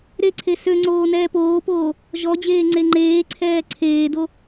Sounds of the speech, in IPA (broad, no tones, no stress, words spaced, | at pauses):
ɾeǀʰe søŋ͡ǀoː nɛːpoːpoː | ʒɔd͡ʑeː ŋ͡ǀeŋ͡ǃeːǀʰɛː ǀʰeːdo